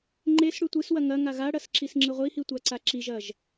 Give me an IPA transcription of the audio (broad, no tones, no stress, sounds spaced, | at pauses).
ŋ͡ǃ e s ɽ ʉ tʷ ɨ s w ɐ ŋ ɐ ŋ a ɣ a ɽ ɐ s ǁ i s ŋ͡ǁ ɨ ʁʷ i h i tʷ a ǀ a ǁ i ʒ ɐ ʒ